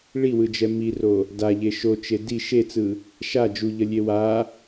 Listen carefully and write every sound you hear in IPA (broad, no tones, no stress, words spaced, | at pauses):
ɭiwɯd͡ʒɛ miro | daʎe ʃot͡ʃe di ʃet͡sɯ | ʃa d͡ʒuʎʌlʲe wa